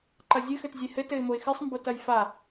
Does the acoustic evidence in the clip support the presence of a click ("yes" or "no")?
yes